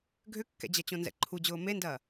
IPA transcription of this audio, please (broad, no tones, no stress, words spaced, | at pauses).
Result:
ɡʱʏkːɛ̰d͡ʑɐ t͡ɕõnzɛ̰ǃʰu d͡ʑʊːmendɐː